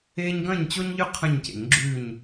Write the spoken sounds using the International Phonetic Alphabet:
eː˦ ɲ ɡ ɐ̃˦˨ ɲ t͡ɕ o˦ ɲ ʎ ʉ˦ qʰ ɐ̃˦˨ ɲ c ḛ˨˩˦ ɲ ɡ͡ǁ ʉː˦˨ ɲ

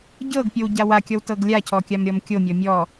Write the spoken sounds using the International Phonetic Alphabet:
ɟ ɤ ɡ pʲ o w ɟ a w a kʲ ɔ w t ɤ ɡ lʲ a cʰ ɔ kʲ a m ɾʲ ɔ m kʲ o mʲ ɔ mʲ ɔ

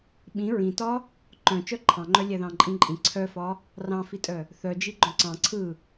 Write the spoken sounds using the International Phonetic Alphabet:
ɓ ĩ ɹ ĩ t ɒ | ǃ œ̃ t͡ʃ œ ǃʰ ɑ̃ ŋ͡ǃ œ lʲ ɛ ð ɑ̃ ǃʼ ĩ ǃʼ ĩ ǀʰ œ f ɒ | r ɑ̃ f i tʼ œ | θ œ d͡ʒ i ɡ͡ǃ œ̃ ǀ ɑ̃ ǀʰ ɯ

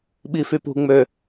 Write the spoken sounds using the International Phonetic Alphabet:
ɓ i f y p ṳ ŋ͡m ø

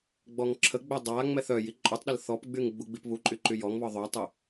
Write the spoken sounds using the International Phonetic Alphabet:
ɡ͡b ɔ ŋ ǁʰ ə ɡ͡b œ dˤ a ŋ͡m ɛ θ œ j i ǃʼ u tˤ ɗ ə l θ ɔ p ɡ͡b y ŋ ɡ͡b u ɡ͡b i p β u ǃʼ y ǃ y j ɔ ŋ β ɔ ðˤ o tˤ y

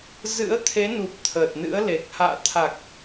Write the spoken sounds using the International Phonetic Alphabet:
z ɨ̰˧˥ ə̯ t̪ʰ e˨˦ n u˨˩ p̚ t̪ʰ əː˨˩ t̚ n ɨ̰˧˥ ə̯ l e˨˩ k̚ h a̰ː˧˨ t̪ʰ a˨˩ k̚

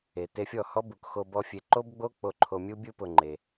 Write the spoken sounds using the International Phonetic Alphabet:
e˨ t e˧ fʲ ɔ˦˨ h ɔ˦ b u˨ k x o˧ b ɔ˧ fʲ e˧ ǃ o˦ b ɡ͡b o˦ k͡p o˧ ǃʰ o˧ mʲ u˦ bʲ u˦ p ʊ˧ ŋ͡ǃ e˧

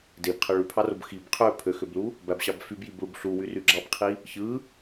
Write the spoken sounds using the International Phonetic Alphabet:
d e b qʰ ɯ ɭ y pʰ ɑ r o b x i b qʰ ø pʰ ø x ø b l u | b æ b ɕ ɑ b f y b j i b ɭ u b ɬ u w y r y ɡ͡ǁ ɑ b qʰ i | ç ɯ

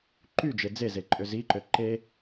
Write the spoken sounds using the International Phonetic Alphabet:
ǃ y d͡ʒ e d͡z e z e ǃʼ ø z i ǃ ø ǃ e

